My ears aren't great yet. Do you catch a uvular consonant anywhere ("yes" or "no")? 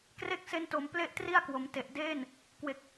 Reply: no